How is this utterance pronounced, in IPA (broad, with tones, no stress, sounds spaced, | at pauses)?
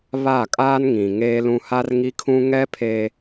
β a˦˨ kʼ aː˦ n ŋ ĩ˨ ŋ eː˦ l ũ˦ h a˦ r ŋ i˦ kʰ ũ˦ ŋ ɛ˦ pʰ e˦